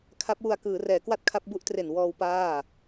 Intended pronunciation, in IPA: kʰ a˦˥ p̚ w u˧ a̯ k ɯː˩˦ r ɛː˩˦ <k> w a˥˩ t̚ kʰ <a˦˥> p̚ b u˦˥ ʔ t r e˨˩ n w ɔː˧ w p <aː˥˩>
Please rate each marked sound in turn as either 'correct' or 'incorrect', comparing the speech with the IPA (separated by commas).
correct, correct, correct